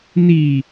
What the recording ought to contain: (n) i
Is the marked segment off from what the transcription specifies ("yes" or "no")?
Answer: no